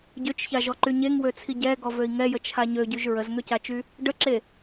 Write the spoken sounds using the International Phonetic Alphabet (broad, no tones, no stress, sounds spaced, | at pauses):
ɟ ø t͡ʃ ç a ʒ ɔ ǃ y ɲ e ŋ w ø t͡sʰ i ɟ ɛ ɡ ɔ v ø i̯ ŋ ɛ j ə t͡ʃʰ a ɲ ø ɟ y ʒ ɹ ə z ŋ ø c a t͡ʃ y | ɖ ə ǁ e